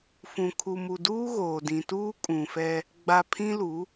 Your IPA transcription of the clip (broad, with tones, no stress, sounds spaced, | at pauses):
f ũ˨ kʰ u˨ m u˨ d uː˦ ɣ oː˨ d ĩ˨ t uː˦ kʼ ũ˨ f ɛ˦ | ɡ͡b a˨ pʰ ĩ˦ l u˨˦